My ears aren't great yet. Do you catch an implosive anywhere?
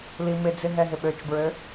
yes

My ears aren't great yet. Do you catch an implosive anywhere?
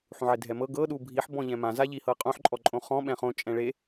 yes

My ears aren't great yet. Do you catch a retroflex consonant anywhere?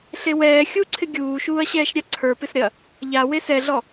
no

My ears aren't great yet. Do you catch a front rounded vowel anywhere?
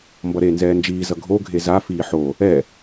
no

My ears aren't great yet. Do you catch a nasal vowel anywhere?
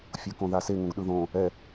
yes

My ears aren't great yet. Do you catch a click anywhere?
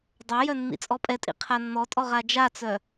no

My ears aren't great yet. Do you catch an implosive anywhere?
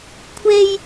no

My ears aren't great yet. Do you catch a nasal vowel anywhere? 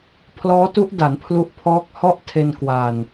no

